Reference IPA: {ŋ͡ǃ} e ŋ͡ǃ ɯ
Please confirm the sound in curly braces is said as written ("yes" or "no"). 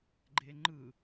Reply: no